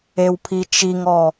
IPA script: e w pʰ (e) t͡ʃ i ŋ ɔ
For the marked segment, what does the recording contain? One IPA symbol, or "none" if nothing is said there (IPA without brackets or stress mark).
i